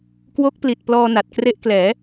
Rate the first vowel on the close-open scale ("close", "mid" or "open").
mid